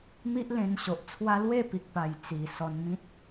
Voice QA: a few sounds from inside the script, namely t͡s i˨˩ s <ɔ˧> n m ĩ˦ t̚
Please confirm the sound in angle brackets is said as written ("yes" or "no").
yes